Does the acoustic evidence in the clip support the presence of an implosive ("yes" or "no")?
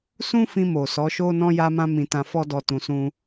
no